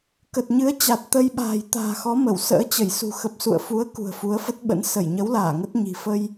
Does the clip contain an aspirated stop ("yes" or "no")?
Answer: no